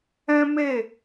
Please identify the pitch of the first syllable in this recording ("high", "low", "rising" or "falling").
high